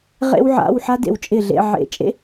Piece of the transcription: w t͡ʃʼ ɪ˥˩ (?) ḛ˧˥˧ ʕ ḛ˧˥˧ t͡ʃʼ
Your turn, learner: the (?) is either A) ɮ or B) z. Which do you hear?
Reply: A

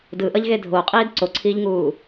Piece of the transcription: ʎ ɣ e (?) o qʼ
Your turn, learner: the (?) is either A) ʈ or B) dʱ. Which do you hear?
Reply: B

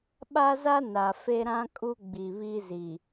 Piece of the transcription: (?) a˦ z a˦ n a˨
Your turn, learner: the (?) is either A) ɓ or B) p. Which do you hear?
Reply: A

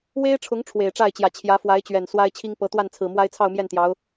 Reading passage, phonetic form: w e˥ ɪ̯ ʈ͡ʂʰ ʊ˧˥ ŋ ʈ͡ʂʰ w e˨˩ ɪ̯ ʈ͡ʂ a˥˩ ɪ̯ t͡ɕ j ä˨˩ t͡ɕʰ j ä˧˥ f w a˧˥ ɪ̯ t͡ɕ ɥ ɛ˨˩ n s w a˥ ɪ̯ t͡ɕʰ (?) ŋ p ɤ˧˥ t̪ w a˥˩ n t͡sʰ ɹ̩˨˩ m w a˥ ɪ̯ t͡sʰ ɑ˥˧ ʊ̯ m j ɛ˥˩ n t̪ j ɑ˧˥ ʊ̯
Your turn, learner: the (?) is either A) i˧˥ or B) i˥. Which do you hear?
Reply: B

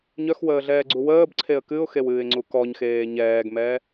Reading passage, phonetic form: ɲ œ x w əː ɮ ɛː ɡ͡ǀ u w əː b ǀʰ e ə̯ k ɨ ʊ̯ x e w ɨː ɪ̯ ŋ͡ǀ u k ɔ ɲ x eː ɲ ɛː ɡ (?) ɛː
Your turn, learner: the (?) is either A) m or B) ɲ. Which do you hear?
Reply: A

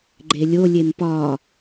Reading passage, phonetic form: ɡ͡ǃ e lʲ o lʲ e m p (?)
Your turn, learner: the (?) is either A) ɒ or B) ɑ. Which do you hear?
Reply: A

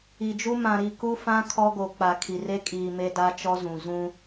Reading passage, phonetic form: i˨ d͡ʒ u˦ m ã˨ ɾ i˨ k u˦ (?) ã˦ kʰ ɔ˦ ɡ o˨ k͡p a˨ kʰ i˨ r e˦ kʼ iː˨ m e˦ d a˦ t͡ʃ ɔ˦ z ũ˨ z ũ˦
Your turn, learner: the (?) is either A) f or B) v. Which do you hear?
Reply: A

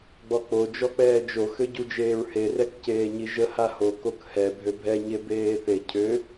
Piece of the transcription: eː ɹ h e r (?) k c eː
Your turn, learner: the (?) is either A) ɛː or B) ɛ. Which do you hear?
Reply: B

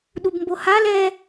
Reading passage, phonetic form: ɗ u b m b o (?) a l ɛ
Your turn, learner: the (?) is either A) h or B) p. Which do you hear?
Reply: A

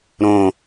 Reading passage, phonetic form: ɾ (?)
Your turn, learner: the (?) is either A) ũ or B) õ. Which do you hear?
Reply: B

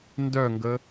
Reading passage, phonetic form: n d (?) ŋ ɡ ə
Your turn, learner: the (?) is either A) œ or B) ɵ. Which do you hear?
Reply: A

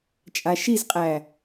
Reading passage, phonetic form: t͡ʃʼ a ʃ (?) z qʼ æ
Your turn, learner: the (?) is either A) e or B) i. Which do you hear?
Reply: B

